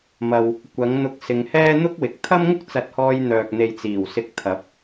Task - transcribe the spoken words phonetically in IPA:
mɐ˨w | kʷɐ˨˥ŋn̪ʊ˧k̚ sɪ˨˧ŋhɛː˥ n̪ʊ˥k̚wɪ˨k̚ t̪ʰɐ˥mŋʊ˥k̚t͡sɐ˨˥t̚hɔː˧j n̪œː˨k̚ n̪e˨jt͡siː˨˩wsɪ˨˥k̚ t̪ʰɐ˨˥p̚

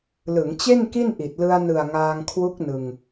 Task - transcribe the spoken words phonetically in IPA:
lɯ˩˦ŋt͡ɕe˥˩nki˥˩nʔi˨˩t̚ lɯ˧a̯nɯ˨˩a̯ ŋaː˧ŋkʰwu˦˥k̚nɯ˧ŋ

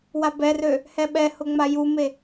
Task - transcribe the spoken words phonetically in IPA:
wabɛrø | hɛɓɛhʊ ŋ͡majume

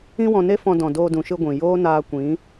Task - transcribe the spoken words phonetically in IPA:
ĩ˦wɔ̃˧ne˦fɔ̃˧ dɔ̃˨doː˧dũ˨ʃɨ˧ ɡʷĩ˨ joː˦naː˧kʷĩ˨˦

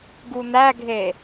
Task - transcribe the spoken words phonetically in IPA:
ɡun̪æɡʱe

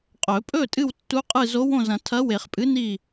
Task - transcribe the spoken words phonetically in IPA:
qʼɵ˨˩˦pʼɵ˥˨ tʼɨ˥˨wtːu˧˥qʼɨ˥˨ zo˧˥wõ˥˨zɐ̃˨˩˦ tʰɐ˧˥we˨˩˦χpʼɨ˧˥ ni˥˨

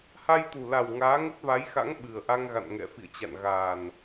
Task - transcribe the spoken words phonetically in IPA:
ha˧jt̪u˨˩la˨˩w ŋaː˨˦ŋə˦˥t̚va˨˦jxa̰˧˥ŋ ɓɨ˨˩ə̯ʔa˧ŋɣa̰˧˨n ŋɛ̰˧˨fḭ˧˨ə̯t͡ɕa̰˧˨n ɣaː˨˩n

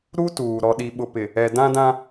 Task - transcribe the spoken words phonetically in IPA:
ɾu˦tuː˨ ɾɔ˨ɗi˨ ɓʊ˨pɪ˨ | ɛ˨dã˦dã˦

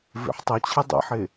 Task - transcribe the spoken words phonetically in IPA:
vḛħtˤʉt͡ɕʰɨ dˤḛħe

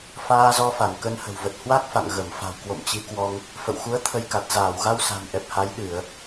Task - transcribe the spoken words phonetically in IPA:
faː˧zɔ˧fa˧˩n kə˧nhə̤˨˩wvə˨˩t̚ hwa˦˥k̚ fa̰˧˨ŋɣə˧˩mfa̤˨˩wkwo̰˧˨m t͡ɕi˨˦kwɔ˧ŋ | fə̰˧˨wxu˨˦ə̯ t̪ʰə˧jka˨˩t̚ zaː˧˩wɣa˧w sa̤˨˩nʔɛ˨˩p̚ha˨˦j ɗɨ˧˩˨ə̯

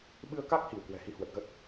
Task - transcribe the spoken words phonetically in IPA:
ɓɨ˧ə̯ka˦˥k̚hi˧˩w kwɛ̤˨˩hi˧ hwə˨˩t̚ɣə˦˥t̚

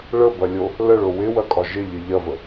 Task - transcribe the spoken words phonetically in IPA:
ɭəbɐlʲo | ləɭo wɪwɐkʼɒ ʒɪʎɪ ʎɐvə

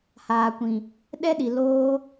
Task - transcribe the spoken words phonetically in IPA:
haː˧ kʷĩ˧ | ɗɛ˦ ɗi˧ loː˦

